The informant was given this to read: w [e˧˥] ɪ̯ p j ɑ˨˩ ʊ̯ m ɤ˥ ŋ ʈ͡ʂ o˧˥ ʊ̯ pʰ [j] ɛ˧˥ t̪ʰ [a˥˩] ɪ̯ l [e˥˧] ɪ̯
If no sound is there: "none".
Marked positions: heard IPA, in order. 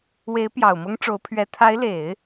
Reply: e˧˥, ɥ, a˧˥, e˨˩˦

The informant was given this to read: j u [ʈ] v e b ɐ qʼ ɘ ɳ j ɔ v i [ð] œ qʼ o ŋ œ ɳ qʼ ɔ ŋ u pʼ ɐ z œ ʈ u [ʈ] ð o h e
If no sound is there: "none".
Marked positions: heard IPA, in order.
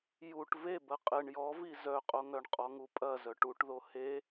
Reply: ʈ, z, ʈ

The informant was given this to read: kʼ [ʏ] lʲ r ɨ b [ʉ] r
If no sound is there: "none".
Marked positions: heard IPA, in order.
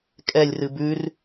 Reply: ɛ, ʉ

